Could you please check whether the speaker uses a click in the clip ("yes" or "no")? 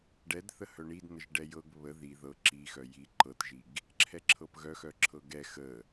yes